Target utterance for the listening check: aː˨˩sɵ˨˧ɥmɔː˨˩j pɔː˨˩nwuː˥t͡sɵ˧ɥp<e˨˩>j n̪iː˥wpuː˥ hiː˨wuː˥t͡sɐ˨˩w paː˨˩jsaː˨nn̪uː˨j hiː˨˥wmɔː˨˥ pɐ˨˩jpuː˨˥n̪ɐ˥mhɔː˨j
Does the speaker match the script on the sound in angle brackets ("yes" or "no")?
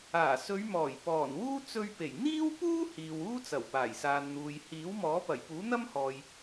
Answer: yes